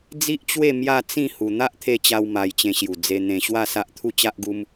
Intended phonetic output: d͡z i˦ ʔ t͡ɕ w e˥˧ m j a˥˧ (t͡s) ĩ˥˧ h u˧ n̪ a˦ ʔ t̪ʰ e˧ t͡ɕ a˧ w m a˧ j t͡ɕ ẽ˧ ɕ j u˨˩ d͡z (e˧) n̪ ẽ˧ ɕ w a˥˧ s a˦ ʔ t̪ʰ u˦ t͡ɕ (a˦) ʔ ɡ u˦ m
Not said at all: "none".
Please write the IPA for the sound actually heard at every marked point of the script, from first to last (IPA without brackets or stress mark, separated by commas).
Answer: t͡s, e˧, a˦